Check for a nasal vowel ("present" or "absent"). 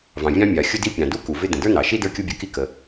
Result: present